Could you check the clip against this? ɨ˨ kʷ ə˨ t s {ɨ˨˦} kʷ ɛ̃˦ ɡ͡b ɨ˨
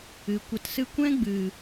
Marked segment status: incorrect: ɨ˧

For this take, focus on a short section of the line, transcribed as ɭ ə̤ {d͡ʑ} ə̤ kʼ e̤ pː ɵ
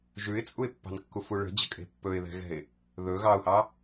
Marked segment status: correct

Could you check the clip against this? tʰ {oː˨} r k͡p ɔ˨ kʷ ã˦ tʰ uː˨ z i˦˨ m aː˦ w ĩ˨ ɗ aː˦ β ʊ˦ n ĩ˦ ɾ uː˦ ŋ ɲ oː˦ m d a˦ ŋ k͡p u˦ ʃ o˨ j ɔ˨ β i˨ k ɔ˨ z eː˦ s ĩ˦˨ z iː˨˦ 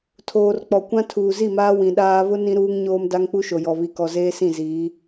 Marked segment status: correct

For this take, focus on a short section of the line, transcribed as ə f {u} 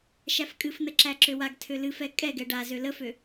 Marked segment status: incorrect: ø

